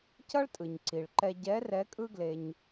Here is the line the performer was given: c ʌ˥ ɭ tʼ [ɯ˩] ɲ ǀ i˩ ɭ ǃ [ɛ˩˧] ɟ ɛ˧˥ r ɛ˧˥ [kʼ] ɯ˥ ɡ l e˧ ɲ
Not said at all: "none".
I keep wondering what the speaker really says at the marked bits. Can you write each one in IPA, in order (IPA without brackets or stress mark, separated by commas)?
ɯ˩, ɛ˧, kʼ